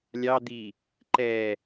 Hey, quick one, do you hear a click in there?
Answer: yes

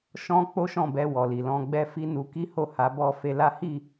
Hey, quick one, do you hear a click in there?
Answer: no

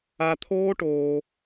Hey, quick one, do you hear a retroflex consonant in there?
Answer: yes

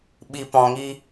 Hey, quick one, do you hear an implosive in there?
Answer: yes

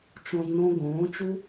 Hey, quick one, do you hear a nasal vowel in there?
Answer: yes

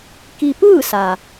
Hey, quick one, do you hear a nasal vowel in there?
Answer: no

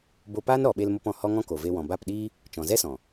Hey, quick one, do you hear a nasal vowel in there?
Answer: yes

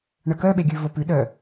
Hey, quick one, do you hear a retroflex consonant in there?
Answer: yes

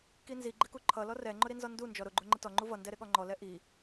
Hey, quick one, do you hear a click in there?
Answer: yes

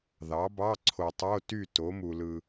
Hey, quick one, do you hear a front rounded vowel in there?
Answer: yes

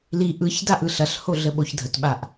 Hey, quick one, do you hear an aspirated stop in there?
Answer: no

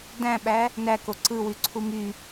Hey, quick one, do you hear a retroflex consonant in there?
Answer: no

